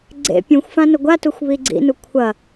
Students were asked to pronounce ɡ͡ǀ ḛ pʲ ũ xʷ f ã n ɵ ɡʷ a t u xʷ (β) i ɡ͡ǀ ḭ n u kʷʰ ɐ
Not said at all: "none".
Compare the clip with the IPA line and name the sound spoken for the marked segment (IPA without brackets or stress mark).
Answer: β